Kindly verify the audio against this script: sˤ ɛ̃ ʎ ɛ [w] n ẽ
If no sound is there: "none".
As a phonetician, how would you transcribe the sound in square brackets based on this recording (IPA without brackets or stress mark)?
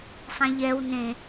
w